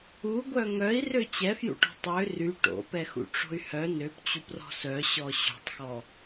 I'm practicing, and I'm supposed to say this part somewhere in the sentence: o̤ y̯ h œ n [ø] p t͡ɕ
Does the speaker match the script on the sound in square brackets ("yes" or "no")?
yes